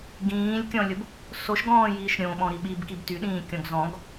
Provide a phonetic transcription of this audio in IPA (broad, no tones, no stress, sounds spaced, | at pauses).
ɡ ĩː lʲ kʲ ɔ̃ lʲ ʊ b | s o ʃ ɡ ɔ̃ː j iː ʃ ɾʲ õ ɓ ɔ̃ ɾ i ɓ i b k i b t y ɗ ĩː kʲ ɔ̃ ɡ z ɔ̃ ɡ